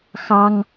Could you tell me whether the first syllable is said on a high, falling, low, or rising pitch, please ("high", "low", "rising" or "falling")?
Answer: high